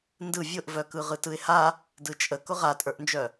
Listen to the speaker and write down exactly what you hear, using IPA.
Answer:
n d ɯ vʲ ʊ ʔ v œ k ɯ ʁ ɯ t ɯ ɪ̯ h a | d ɯ t͡ʃʼ ə k ʊ ʁ a tʼ ə˞ ʔ n d͡ʒ œ

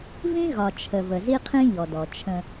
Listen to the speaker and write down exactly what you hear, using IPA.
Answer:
v ĩ˦ ɣ ɒ˨ t͡ʃʰ ə˨ v ə˨ z i˦ qʰ ĩ˦ ʎ ɔ˨ d ɔ˨ t͡ʃʰ ə̃˦

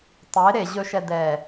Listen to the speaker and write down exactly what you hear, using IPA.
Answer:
tˤ e ɾ e ʑ ɵ ʃ ɛ d ɛ

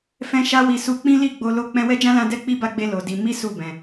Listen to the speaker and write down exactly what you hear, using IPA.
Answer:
f ɛ̃˦ ʃ a˦ w i˧ s u˧ k͡p ĩ˦ l i˦˨ ɡ͡b o˧ l o˧ k͡p ɛ̃˧ w ɛ˦ d͡ʒ ã˦ l ã˧ d ɛ˦ k͡p i˦ b a˧ ɡ͡b e˧ l o˨ d i˧ m i˦ s u˦˨ b ɛ̃˨

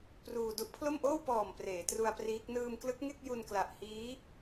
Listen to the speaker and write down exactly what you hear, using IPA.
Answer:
p r uː˧ d u˦˥ ʔ pʰ l o˥˩ m ʔ oː˥˩ w p ɔː˨˩ m p r eː˩˦ t r u˧ a̯ p r iː˦˥ k̚ n ɯː˧ m k l ɯ˦˥ k̚ ŋ e˥˩ k̚ j u˧ n k l a˨˩ ʔ h iː˦˥

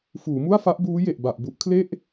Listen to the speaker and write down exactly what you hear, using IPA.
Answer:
f uː˩˦ m u˥˩ a̯ f a˦˥ ʔ b uː˦˥ j e˨˩ ʔ b a˨˩ ʔ b u˦˥ ʔ kʰ l e˥˩ ʔ

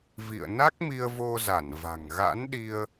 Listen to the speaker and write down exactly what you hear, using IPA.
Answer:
v ḭ˧˨ ə̯ n a˦˥ k̚ m i˧ ə̯ v o˧ z a˧˩ n v a̤˨˩ ŋ ɣ a̰˧˥ n ɗ i˧ ə̯

